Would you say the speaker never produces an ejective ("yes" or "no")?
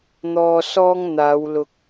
yes